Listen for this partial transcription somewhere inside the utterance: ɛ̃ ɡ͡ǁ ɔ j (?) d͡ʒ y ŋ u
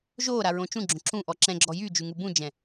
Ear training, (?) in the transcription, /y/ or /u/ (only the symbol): y